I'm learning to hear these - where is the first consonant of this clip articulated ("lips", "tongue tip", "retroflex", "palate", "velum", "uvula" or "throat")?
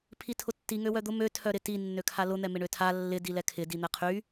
lips